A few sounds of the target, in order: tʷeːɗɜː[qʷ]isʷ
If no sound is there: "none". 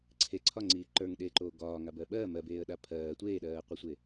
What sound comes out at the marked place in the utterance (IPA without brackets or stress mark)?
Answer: qʷ